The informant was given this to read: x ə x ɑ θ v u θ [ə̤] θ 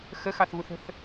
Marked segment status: correct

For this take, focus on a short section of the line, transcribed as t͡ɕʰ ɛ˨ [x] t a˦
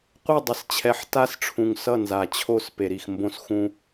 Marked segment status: incorrect: ħ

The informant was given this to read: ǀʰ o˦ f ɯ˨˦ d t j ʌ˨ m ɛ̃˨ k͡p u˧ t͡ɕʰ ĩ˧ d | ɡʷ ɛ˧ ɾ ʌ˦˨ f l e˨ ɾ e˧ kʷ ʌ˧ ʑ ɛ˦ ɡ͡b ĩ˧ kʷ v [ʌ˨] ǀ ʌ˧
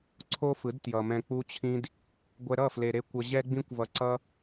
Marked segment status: correct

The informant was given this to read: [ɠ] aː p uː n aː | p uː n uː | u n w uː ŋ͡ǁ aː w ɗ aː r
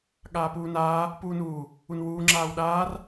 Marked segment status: correct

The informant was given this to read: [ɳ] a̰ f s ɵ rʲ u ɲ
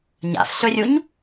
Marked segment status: incorrect: ɲ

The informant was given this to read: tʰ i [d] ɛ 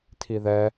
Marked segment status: incorrect: ð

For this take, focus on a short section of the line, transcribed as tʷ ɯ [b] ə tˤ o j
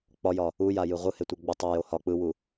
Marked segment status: incorrect: ɡ͡b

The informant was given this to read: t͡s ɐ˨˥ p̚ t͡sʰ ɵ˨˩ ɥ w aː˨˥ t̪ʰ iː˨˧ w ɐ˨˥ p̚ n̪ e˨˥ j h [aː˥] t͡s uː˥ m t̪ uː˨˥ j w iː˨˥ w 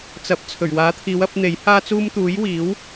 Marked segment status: correct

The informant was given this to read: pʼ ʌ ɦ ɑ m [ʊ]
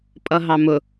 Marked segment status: correct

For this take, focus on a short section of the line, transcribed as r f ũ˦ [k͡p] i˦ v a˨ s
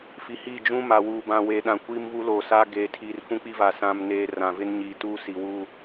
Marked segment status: correct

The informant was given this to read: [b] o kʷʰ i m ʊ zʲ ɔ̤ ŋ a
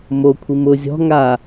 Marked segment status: incorrect: m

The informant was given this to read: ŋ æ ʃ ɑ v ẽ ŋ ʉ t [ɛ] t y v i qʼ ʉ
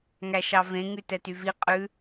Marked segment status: correct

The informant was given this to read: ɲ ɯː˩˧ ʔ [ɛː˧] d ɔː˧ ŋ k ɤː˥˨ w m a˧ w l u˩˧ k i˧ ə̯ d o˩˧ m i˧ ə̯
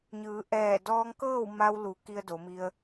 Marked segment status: incorrect: ɛː˧˩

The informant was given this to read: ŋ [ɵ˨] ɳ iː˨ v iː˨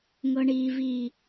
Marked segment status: incorrect: ɤ˨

